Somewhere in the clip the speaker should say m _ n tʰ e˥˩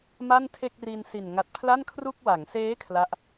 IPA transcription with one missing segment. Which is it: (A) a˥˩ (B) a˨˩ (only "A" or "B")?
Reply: A